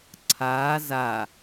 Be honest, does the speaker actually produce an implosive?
no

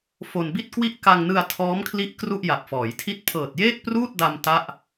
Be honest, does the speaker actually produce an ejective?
no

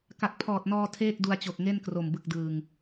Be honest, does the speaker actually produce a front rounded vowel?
no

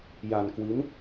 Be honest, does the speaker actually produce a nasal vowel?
no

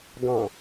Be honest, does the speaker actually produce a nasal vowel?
yes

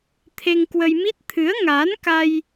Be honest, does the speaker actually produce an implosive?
no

